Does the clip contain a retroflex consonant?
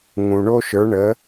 yes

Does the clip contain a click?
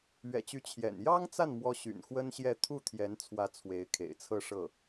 no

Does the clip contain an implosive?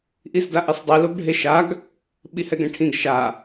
yes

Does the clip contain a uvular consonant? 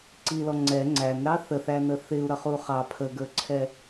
yes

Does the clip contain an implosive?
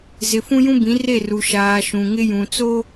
no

